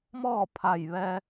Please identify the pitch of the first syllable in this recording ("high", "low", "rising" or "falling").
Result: falling